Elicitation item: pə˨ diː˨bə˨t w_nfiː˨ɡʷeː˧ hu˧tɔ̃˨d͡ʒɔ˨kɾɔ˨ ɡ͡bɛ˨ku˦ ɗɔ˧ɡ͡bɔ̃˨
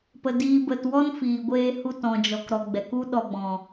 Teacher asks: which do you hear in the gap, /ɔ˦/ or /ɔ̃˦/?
ɔ˦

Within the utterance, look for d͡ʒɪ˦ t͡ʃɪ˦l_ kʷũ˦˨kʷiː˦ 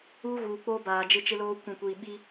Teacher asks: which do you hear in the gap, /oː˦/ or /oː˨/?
oː˦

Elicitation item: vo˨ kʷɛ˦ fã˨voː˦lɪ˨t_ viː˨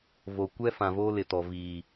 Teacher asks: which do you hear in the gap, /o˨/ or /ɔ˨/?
ɔ˨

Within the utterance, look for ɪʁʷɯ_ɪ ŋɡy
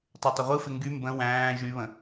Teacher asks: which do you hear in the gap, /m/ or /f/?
f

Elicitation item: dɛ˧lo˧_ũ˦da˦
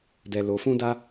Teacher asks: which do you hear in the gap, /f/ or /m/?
f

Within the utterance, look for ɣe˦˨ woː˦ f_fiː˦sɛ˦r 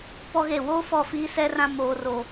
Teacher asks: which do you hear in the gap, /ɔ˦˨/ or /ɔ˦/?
ɔ˦˨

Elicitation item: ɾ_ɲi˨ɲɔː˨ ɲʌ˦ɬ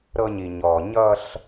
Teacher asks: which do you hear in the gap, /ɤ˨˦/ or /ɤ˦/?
ɤ˦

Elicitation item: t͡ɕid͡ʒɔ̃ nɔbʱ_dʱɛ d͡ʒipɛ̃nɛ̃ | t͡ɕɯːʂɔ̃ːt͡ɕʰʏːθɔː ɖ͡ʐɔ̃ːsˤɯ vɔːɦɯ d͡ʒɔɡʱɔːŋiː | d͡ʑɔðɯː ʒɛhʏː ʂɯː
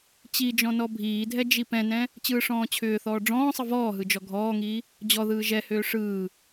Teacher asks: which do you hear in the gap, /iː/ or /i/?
iː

